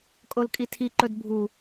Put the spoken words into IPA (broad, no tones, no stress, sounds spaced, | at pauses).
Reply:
kʼ o l kʼ i tʰ i ǃ ɵ d bʱ u